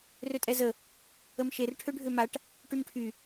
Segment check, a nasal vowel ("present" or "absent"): absent